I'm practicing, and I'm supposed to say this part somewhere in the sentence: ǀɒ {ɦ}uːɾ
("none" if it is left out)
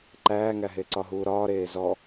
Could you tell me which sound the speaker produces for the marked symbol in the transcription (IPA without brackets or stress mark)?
ɦ